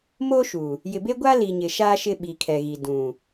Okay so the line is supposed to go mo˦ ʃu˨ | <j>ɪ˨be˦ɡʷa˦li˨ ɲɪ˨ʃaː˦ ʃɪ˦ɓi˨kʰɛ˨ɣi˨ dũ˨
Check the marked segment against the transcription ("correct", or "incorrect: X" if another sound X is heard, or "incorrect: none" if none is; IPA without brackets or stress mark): correct